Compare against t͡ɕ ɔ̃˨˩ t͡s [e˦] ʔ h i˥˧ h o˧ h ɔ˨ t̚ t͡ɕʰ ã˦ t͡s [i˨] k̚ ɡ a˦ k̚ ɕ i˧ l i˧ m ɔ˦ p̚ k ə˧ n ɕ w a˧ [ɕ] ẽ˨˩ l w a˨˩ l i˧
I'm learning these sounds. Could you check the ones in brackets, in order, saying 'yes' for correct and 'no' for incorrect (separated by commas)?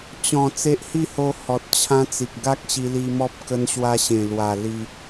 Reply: yes, yes, yes